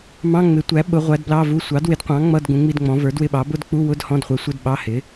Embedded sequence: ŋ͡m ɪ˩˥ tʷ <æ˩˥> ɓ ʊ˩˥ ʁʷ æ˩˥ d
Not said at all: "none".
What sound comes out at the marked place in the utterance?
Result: æ˩˥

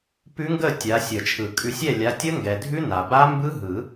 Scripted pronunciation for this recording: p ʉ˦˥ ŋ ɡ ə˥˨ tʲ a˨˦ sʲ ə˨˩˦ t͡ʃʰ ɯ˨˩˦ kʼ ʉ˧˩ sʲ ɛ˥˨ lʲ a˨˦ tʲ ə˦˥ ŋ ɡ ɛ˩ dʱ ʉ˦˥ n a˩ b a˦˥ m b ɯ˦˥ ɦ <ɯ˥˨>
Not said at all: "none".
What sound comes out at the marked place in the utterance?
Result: ɯ˨˩˦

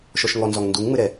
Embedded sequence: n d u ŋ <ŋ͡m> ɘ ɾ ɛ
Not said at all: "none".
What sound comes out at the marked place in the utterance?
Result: ŋ͡m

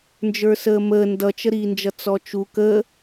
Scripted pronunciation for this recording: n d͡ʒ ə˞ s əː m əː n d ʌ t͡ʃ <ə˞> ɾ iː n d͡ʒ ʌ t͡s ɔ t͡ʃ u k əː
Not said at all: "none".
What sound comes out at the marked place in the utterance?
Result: ə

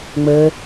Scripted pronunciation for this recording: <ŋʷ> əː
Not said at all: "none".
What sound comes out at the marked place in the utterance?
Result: ŋ͡m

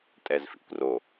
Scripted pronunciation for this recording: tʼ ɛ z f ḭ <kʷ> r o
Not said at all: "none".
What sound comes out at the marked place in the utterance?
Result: kʷ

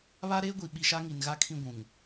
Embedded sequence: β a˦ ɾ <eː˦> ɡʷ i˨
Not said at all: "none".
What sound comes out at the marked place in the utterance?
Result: eː˦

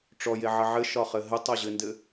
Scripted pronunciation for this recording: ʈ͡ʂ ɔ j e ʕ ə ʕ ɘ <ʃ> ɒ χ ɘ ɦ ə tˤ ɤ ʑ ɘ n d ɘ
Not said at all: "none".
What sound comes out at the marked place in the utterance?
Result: ʃ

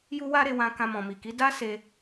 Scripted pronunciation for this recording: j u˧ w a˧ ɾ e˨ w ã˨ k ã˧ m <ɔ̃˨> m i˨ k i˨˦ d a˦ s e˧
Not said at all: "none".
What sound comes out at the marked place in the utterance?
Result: ɔ̃˨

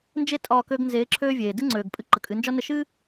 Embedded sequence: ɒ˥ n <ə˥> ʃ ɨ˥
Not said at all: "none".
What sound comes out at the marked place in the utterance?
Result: ə˧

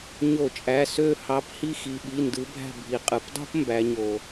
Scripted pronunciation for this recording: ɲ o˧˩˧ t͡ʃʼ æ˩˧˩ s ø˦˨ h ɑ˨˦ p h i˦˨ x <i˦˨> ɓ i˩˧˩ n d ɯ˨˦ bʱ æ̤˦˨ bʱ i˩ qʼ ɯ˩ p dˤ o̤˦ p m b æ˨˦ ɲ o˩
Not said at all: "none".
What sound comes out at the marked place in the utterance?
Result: i˩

